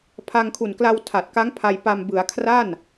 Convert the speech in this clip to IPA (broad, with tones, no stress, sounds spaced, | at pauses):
pʰ a˧ ŋ kʰ u˨˩ n k l a˧ w tʰ a˨˩ t̚ k a˦˥ ŋ pʰ a˧ j p a˧ m b ɯ˩˦ a̯ kʰ r a˥˩ n